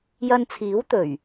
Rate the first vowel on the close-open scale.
open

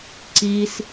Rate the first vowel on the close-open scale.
close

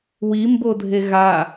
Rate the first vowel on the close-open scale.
close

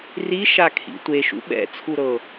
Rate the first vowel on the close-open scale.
close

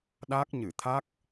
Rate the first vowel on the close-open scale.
open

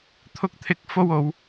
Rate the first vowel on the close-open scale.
close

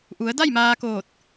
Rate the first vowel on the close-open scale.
close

